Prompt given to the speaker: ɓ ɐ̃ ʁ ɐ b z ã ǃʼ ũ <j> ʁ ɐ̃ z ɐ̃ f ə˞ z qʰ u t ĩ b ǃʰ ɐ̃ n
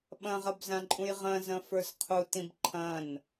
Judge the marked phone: correct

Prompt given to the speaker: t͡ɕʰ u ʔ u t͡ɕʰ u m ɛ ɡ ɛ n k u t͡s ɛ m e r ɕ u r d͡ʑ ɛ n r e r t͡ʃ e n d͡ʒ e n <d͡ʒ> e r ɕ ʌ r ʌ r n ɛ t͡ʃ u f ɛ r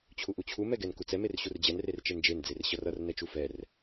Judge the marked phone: incorrect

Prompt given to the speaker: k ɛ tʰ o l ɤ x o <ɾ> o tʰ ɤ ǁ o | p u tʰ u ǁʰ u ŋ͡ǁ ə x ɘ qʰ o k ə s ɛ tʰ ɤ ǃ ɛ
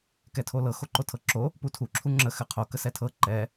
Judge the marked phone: incorrect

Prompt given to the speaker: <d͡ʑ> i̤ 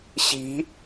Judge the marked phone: incorrect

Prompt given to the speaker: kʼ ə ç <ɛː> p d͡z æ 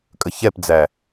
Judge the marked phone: incorrect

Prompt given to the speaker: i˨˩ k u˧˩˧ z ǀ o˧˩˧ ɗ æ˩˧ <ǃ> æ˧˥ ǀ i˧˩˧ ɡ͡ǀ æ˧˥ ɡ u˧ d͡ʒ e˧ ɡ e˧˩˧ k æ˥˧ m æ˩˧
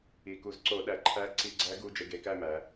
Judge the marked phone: incorrect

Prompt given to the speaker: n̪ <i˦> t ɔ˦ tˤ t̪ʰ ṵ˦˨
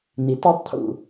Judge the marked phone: incorrect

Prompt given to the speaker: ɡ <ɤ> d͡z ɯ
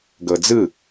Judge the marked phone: correct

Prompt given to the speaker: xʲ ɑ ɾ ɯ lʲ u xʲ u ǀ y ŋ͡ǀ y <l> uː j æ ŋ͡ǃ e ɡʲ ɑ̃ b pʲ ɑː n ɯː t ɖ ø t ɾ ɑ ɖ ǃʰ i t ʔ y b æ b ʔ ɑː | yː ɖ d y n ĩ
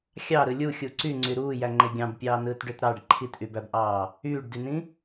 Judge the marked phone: incorrect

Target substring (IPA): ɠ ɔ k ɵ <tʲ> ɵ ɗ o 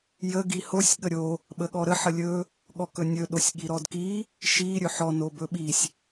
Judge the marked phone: incorrect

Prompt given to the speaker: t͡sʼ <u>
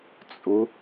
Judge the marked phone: incorrect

